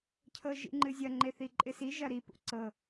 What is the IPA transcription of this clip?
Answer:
cʰ ɤ ʒ ḭ ŋ͡ǃ ɨ zʲ ɐ ŋ͡ǃ e θ i ǃʼ ɪ s i ʒ ɐ ɾ i p ṵ ǀ ɤ

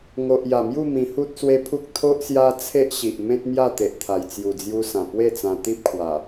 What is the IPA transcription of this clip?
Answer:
ŋ o˨ ʔ j a˨˩ m j u˥˧ m ĩ˧ h u˦ t̚ s w e˦ pʰ u˦ k̚ t̪ʰ o˦ ʔ s j a˦ t͡sʰ e˦ ʔ ɕ i˨ ʔ m ẽ˦ t̚ m j a˥˧ t̪ e˨ ʔ t̪ʰ a˨˩ j t͡s j u˨˩ d͡z j u˧ s ã˨˩ p w e˥˧ t͡s ã˧ t̪ i˦ p̚ kʰ w a˨˩

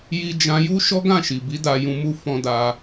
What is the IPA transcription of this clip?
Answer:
j i˧ d͡ʒ ã˧ j u˦ ʃ ɔ˦ ɡ ã˦˨ ʃ i˨ b i˨˦ d a˧ j ũ˧ m u˧ f ɔ̃˧ d a˧

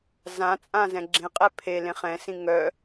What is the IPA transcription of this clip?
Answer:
z ã t͡sʼ ã z ɛ̃ ɡ͡ǁ ẽ qʼ ɛ pʰ e l ẽ χ ɛ̃ s ĩ ŋ œ

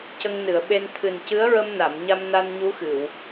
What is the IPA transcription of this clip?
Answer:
c ə˧ ŋ n ɨ˨˩˨ ə̯ ɓ e˧ n t̪ʰ ɨ˨˩ n c ɨ˧˥ ə̯ ɹ ə˧ m n a˨˩˨ m ɲ a˧ m n a˧ n ɲ u˧˥ x ɨ˨˩˨ w

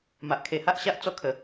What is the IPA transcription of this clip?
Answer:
m a˨ ʔ kʰ e˨˩ h a˦ ʔ ɕ a˦ ʔ t͡s ɔ˥˧ kʰ ə˨˩

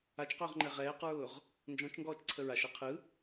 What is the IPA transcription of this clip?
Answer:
a t͡ʃ q ʊː ʁ ŋ͡ǃ ɛ ʁ ɛː q ɹ ʊː ʁ | n d͡ʒ ɔ̃ t͡ʃ ŋ ɡ ɔː t͡ʃ ǀʰ ə ɹ a ʃ ɛ qʰ ɯ

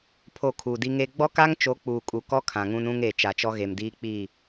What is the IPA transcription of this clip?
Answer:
pʰ o˦˨ kʰ uː˨ d i˦ ŋ e˦ ɡ͡b ɔ˦ k a˦ ŋ t͡ʃ o˨˦ k͡p uː˨ kʼ u˨ k ɔ˦ kʰ ã˨ ŋ ũ˦ n ũ˦ ŋ e˨ t͡ʃ a˨ t͡ʃ ɔ˦ ɣ e˨ m d iː˦ k͡p i˦˨

